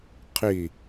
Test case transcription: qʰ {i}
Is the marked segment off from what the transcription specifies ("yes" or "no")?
no